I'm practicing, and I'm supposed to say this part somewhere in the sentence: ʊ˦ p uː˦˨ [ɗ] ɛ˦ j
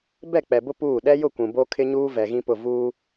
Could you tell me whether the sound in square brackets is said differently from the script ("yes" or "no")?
no